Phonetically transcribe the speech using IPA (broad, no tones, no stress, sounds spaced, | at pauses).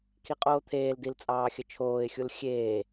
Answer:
kʰ i qʼ oː t̪ʰ eː l d i l t͡sʼ ɑː xʲ ə t͡ʃʰ oː ɪ̯ xʲ u l xʲ eː